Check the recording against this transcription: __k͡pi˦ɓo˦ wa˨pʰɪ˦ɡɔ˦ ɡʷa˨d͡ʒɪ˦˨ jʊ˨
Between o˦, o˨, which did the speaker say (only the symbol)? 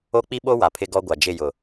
o˦